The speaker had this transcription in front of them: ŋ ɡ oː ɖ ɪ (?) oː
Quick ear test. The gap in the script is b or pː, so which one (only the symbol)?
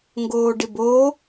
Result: b